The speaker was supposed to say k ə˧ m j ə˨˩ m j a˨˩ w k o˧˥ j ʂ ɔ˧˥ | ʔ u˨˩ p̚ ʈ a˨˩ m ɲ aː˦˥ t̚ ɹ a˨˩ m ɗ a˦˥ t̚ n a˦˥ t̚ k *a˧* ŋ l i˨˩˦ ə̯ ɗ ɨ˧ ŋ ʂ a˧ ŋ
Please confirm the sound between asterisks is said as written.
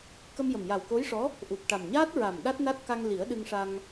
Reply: yes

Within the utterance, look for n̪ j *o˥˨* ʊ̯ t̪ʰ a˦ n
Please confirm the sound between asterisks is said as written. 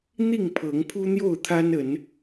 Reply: yes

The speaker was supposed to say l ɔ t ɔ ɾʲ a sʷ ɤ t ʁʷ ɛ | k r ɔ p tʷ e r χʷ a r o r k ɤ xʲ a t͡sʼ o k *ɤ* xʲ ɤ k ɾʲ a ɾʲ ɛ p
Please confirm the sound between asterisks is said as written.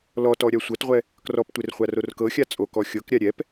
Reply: no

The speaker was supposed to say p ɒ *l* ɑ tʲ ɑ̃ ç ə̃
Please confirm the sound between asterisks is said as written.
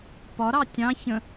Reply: no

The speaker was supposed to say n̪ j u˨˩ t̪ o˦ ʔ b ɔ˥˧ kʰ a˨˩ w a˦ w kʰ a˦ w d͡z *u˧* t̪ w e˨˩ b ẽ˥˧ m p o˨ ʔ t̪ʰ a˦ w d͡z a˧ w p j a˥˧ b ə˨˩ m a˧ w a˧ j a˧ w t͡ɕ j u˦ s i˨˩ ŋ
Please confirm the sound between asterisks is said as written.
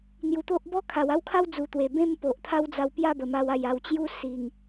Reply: no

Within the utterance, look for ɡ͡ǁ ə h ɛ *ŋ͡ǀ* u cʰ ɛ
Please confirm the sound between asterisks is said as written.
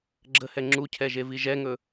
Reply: no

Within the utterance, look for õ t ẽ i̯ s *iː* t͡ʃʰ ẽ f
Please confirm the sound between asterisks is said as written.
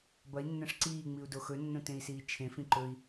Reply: yes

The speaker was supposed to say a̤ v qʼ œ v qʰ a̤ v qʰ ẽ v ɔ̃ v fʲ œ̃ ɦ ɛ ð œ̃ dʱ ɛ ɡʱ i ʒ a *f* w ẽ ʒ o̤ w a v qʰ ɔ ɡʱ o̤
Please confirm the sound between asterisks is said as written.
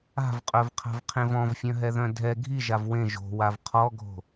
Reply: no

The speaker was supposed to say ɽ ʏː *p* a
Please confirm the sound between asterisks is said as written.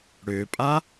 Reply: no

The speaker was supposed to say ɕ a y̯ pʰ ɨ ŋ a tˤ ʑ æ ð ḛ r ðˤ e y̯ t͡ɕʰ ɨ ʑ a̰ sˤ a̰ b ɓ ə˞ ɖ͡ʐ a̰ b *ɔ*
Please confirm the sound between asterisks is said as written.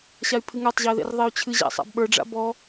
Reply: yes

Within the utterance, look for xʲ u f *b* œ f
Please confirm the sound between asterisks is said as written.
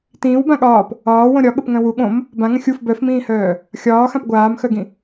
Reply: yes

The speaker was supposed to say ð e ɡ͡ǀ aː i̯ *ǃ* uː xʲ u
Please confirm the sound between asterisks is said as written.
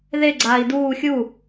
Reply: no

